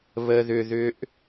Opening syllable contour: high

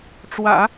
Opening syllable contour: low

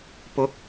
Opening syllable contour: high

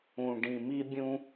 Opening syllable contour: low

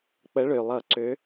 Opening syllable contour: rising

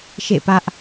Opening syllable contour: falling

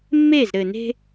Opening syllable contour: falling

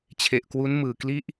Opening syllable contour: low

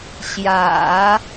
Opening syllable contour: low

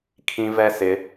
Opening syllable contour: high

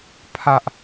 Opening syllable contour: high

